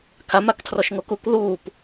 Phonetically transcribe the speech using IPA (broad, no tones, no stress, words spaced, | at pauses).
kʰamaktʰrɔʃŋo kuk ðuːp